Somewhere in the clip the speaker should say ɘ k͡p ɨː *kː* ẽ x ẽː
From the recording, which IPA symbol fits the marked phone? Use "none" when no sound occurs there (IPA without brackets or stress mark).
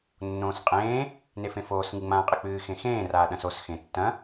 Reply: x